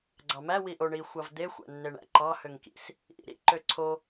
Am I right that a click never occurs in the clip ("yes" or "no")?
no